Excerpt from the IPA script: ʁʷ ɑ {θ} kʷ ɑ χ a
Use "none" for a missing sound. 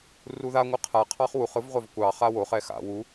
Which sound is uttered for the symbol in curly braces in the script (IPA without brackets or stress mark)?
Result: v